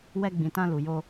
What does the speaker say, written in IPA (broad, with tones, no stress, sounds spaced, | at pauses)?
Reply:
w ɛ˧ ɡ͡b ĩ˨ t ã˧ l u˨ j o˧